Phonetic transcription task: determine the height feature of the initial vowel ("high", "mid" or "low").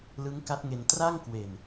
high